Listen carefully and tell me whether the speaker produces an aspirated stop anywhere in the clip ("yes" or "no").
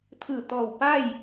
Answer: yes